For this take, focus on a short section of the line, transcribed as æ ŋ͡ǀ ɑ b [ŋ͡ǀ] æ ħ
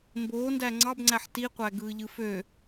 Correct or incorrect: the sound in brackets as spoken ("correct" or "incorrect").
correct